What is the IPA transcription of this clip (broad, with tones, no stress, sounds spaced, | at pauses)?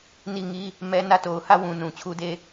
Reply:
n i˦˨ ŋ i˦ | m ɛ˦ n ä˦˨ t o˨ ʊ̯ h ä˦˨ w ũ˨ n ũ˨ t͡ɕʰ u˦ d e˦